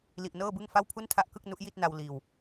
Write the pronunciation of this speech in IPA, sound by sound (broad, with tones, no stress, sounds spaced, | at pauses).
l i˨˩ ʔ n ɤː˥˩ b ɯ˥˩ ŋ f a˥˩ w pʰ u˥˩ n tʰ a˥˩ ʔ k ɯ˥˩ k̚ n u˦˥ ʔ j i˥˩ t̚ n a˧ w l iː˨˩ w